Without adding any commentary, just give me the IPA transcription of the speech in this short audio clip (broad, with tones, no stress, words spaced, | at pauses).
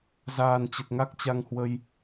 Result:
zaː˨˩nt͡ɕə˨˩t̚ ŋa˦˥k̚t͡ɕa˧ŋhwə˧j